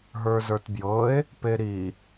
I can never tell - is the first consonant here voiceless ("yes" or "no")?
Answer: no